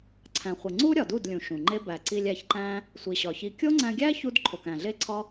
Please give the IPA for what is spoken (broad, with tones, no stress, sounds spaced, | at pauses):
ǀʰ æ̃˨ χʷ i˨ ŋ͡ǀ u˦ ɾʲ ɒ˨ d u˦˨ d lʲ ũ˨ ʃ ũ˨ ŋ͡ǃ e˦ b æ˨ ǀ i˧ lʲ æ˧ ç ǃ æ̃˦ | sʷ i˨ ɕ ɒ˨ ç i˧ kʲ o˦ ŋ͡ǀ æ̃˧ ɡʲ æ˦ ç u˦ d ǃʰ o˨ k æ̃˨ ɮ e˦ ǀʰ ɒ˦